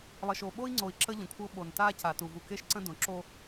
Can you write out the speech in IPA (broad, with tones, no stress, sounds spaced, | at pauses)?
lˠ ə˨ ʃ o˨ ɓ o˦ i̯ ŋ͡ǀ o˨ i̯ ǁ ə˦ ʎ ə̃˨ kʷʰ ɤ˦ ɓ o˨ n t a˦ c a˨ t u˨ v u˨ k e˦ ʃ ǀ ə̃˦ d õ˨ ǁ o˦